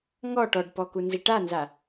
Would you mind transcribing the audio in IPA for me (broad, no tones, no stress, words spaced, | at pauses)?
ŋɔ ʈɔɖpɔ kunziʈanza